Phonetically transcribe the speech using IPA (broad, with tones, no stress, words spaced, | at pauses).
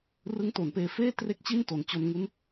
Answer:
rɯ˦˥ŋto˩˦npeː˧feː˥˩ tre˥˩k̚t͡ɕi˥˩nto˩˦n t͡ɕo˧nŋu˦˥n